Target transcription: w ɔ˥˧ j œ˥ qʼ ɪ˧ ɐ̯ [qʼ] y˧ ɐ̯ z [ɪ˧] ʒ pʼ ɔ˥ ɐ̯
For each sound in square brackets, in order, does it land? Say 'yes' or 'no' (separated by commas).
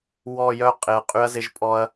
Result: yes, yes